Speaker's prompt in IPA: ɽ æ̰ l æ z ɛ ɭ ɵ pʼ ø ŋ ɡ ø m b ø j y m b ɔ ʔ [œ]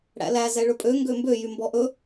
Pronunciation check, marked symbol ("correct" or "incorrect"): incorrect